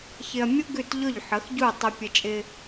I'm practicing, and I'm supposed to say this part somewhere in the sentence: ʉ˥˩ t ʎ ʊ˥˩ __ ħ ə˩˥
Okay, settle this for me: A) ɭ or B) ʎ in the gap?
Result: B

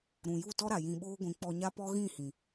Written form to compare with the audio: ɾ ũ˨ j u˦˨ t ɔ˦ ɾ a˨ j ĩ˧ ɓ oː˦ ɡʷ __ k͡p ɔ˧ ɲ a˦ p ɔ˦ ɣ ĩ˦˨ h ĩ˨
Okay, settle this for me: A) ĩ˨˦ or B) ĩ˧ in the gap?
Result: A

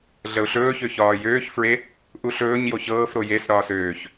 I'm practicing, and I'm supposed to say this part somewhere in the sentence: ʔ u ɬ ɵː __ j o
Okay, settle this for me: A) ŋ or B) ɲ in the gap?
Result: B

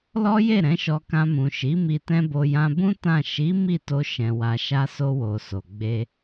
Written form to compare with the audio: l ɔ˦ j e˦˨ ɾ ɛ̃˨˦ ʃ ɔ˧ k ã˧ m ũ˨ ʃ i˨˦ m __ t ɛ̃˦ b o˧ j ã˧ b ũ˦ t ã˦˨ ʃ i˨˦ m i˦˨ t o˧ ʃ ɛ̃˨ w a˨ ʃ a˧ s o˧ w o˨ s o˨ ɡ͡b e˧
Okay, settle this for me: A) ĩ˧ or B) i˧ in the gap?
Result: B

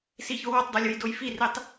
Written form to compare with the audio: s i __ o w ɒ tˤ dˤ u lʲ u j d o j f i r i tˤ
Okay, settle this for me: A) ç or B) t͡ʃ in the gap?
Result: A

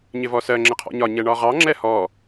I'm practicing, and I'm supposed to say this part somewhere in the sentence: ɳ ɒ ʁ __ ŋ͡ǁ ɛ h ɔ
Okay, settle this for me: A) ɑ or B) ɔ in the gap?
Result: A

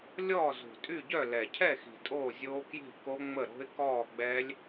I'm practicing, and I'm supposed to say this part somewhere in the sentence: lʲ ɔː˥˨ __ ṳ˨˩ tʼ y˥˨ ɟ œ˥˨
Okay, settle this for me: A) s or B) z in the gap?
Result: B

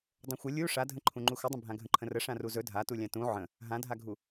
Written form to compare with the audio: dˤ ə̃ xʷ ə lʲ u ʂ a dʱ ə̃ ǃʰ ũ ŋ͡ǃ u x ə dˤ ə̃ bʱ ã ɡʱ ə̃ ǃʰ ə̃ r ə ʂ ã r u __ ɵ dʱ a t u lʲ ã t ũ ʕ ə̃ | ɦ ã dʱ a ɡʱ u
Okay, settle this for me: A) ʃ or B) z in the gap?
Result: B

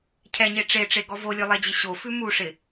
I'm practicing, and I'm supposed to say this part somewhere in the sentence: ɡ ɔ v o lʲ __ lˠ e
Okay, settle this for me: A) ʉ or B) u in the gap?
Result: A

